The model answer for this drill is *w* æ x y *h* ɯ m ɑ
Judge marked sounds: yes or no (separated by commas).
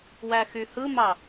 yes, yes